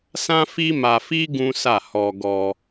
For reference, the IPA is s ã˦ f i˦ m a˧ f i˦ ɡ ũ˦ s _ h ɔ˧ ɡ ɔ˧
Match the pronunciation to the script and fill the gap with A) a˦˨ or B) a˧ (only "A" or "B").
A